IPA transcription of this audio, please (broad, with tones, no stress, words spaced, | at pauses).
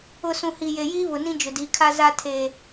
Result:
ʊ˨ sũ˨hi˨ je˨jiː˦βʊ˨ nĩ˦d͡ʒʊ˨di˨˦kʰa˦ za˦tʰe˨